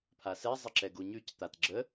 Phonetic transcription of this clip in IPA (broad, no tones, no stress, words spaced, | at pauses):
pʰasɛ zˤəǁɛɡuɲʉc t̪atɡ͡ǁə